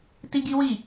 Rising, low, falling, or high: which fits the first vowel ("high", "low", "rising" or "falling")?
high